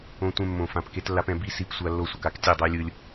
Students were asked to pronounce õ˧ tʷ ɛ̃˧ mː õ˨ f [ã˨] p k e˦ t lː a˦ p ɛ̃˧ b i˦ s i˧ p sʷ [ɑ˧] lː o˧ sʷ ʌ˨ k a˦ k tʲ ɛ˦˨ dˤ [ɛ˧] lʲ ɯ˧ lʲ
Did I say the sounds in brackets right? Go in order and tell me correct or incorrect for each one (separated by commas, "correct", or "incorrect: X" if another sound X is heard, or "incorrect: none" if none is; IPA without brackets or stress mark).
correct, incorrect: a˧, incorrect: ɛ˦